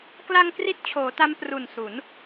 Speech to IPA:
k l a˧ ŋ k r i˥˩ t̚ t͡ɕʰ oː˩˦ t a˦˥ m p r u˨˩ n s u˩˦ n

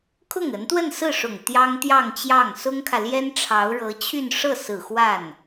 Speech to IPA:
kʰ ʊ˥˩ ŋ ə˧˥ n t̪ w ə˥˧ n s ɹ̩˥˩ ʂ ʊ˨˩ ŋ t̪ j ɑ˥ ŋ t̪ j ɑ˥˧ ŋ t͡ɕ j ɑ˥˩ ŋ s ʊ˥ ŋ kʰ ä˨ l j ɛ˥ n ʈ͡ʂʰ ɑ˧˥ ʊ̯ ɻ ɤ˧˥ t͡ɕʰ y˥˧ n ʂ ɤ˥˩ s ɹ̩˨˩ x w a˥˩ n

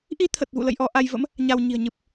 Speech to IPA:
ʔ i˧ t̪ʰ ə˨˩ t̚ v ṵ˧˨ l ə̰˧˨ j ʔ ɔ˧ ʔ a˧ j v ə̰˧˥ m | ɲ a˧ w ɲ i̤˨˩ ə̯ ɲ ɨ˨˩ p̚

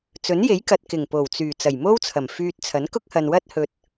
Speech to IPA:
t͡s ɵ˨˥ n j e˨˥ j k ɐ˨ t̚ k ɪ˨˩ ŋ p o˨˩ w t͡s yː˨˩ t͡s ɐ˨˩ j m o˥ w t͡sʰ ɐ˨˩ m f yː˧ t̚ t͡sʰ ɐ˨˥ n k ʊ˥ k̚ h ɐ˨ n w ɐ˥ t̚ h ɵ˧ t̚

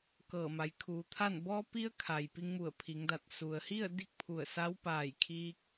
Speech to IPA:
k ɤː˧˩ m a˩˧ j kʰ uː˩˧ t̪ʰ a˥˨ n b ɔː˧ p i˧ ə̯ kʰ a˩ j p i˧ ŋ m u˧˩ ə̯ pʰ i˩˧ ŋ d a˧˩ t̚ s u˩ ə̯ h i˥˨ ə̯ d i˥˨ k̚ pʰ u˧˩ ə̯ s a˧˥ w p aː˧˩ j kʰ iː˧ k̚

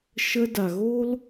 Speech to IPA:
ʃ ə˧ d a˨ ɣ o˦ l

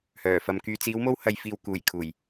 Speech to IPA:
h œː˨˩ f ɐ˨ m k yː˨ t͡s iː˨˧ w m o˧ w h ɐ˨ j f iː˨ w k uː˨˩ j kʰ uː˨˩ j

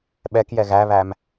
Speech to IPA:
ɓ ɛ k j ɛ ɣ æ β æ m

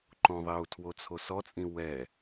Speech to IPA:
ǃ õ ðˤ e u̯ tʰ w o t͡sʰ o s ɔ t͡sʼ ĩ w ɛ

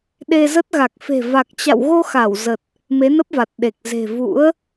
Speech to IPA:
ɗ e˧ z ə˦˥ t̚ ɣ a˨˩ k̚ f e̤˨˩ v a˨˩ k̚ t͡ɕ a̰˧˨ w ɣ o˧ x a˧˩ w z ə˨˩ t̚ | m e˨˦ n ə˦˥ p̚ v a˨˩ t̚ ɗ e˨˩ k̚ z e̤˨˩ v ṵ˧˥ ə̯

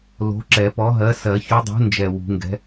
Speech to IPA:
l o̤˨˥ ǁ ɛ˨˩˦ p ɔ˨˥ ɦ ɜ˨˥ s ɜ˨˩˦ ç u˨˥ dˤ ṳ˨˥ n d͡ʒ ɛ˨˩ w ṳ˨˩˦ ŋ ɡ ɛ̤˨˥

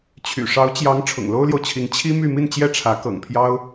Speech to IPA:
t͡ɕʰ y̰˨˩ ʂ ɑ˧˥ ʊ̯ t͡ɕ j ɑ˧˥ ŋ ʈ͡ʂʰ ʊ̰˨˩ ŋ l o˥ ʊ̯ l j o˨ ʊ̯ t͡ɕʰ i˧˥ ŋ t͡ɕʰ i˥ m y˥˧ m i˥˧ n t͡ɕ j ɛ˥˩ ʈ͡ʂʰ ä˧˥ k ɤ̰˨˩ ŋ pʰ j ɑ˥ ʊ̯

